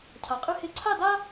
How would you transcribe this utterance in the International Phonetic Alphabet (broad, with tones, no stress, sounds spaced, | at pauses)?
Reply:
cʰ a˩˧ qʼ ɨ˥˧ h e˥˧ ǀʰ a˥˧ d a˥